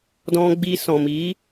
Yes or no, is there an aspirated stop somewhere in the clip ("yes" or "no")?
no